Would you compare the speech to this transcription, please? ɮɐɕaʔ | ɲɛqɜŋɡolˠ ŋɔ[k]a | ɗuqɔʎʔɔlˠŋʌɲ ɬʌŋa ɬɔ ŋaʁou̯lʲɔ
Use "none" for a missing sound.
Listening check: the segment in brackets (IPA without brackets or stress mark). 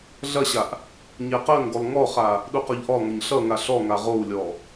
χ